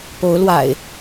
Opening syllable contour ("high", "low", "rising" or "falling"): rising